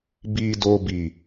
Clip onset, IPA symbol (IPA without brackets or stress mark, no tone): b